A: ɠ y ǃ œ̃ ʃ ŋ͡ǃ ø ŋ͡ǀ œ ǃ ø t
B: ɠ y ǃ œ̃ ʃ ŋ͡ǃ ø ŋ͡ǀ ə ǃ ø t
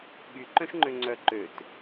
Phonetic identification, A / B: A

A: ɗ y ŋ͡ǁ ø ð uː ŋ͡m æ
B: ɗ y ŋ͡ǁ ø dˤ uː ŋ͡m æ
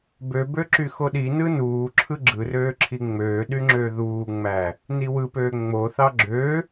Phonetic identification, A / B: A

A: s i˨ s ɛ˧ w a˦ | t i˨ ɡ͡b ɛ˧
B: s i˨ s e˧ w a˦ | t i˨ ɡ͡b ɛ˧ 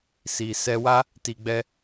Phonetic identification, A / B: A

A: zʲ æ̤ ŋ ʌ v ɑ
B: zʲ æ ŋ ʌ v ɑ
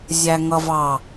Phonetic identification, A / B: B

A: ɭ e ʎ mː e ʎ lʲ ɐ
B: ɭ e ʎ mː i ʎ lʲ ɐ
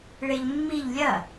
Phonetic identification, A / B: B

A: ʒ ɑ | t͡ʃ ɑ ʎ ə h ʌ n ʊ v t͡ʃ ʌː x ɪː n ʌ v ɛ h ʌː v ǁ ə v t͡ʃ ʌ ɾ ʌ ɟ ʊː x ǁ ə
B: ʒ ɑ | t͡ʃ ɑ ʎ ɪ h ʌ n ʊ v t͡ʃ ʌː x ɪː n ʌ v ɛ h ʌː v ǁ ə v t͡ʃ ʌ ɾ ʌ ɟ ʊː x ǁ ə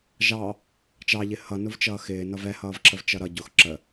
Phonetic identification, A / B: B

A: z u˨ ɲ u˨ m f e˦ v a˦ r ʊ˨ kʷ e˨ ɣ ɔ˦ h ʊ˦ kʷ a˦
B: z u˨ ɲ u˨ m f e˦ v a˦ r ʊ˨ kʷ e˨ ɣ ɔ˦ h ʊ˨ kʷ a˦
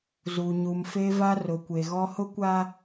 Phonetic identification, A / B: A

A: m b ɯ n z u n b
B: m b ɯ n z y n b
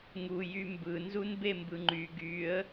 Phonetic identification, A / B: A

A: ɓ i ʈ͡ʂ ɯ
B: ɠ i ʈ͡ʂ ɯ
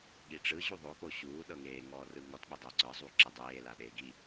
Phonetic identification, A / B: B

